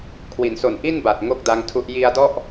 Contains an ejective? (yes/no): no